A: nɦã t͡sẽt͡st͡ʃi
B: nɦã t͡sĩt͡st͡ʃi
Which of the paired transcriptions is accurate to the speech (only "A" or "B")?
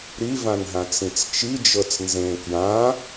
B